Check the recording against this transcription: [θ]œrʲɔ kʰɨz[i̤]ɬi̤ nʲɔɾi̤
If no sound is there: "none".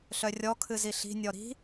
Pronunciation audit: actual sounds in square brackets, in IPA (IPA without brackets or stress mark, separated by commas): ɬ, i